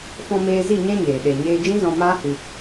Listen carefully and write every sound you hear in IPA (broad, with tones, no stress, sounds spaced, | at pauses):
f ɔ̃˧ m eː˧ z i˦˨ ɲ ɛ̃˦ ɲ eː˨ ɗ e˨ ɲ eː˧ d͡ʒ ĩ˦ z ɔ̃˧ m aː˦ h ɨ˧